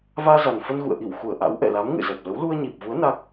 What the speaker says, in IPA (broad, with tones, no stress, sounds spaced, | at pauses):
v aː˧ z a˨˩ n f ə˧ n ɣ ṵ˧˨ ə̯ ʔ i˧˩ w x u˧˩ ə̯ ʔ a̰˧˥ w ʔ ɛ̰˧˨ l a˨˦ m ŋ ɨ̰˧˨ z ɛ˨˩ p̚ l ə˨˦ w l u˧ ə̯ ɲ i˨˩ p̚ v u˨˦ ə̯ n a˦˥ k̚